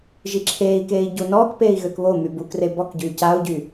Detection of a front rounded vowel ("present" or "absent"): present